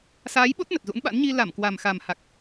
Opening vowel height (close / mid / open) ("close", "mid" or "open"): open